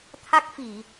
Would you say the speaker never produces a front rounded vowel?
yes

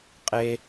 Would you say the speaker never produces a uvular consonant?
no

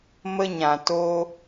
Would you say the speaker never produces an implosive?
yes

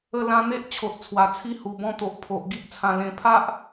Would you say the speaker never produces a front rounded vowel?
yes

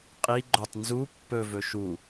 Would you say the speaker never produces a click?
no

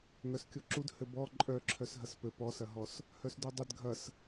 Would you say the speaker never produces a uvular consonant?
yes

